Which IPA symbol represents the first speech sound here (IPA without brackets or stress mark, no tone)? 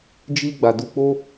d͡ʒ